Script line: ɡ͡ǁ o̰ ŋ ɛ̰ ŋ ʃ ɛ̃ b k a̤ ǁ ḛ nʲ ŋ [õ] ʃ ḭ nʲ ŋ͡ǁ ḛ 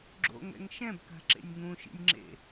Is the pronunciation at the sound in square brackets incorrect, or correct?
incorrect